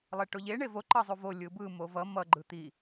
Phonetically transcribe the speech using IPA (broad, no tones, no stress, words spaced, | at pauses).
lˠeʈoʎe ɳevo ǃʌzˤuvo lʲɯbɯ movʌ mʌ ɡ͡ǃɯt̪i